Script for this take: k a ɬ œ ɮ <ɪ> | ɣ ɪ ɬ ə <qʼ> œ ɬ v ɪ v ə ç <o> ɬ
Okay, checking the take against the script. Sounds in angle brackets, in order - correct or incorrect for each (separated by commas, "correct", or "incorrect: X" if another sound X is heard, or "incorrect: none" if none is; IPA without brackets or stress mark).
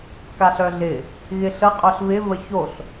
correct, correct, correct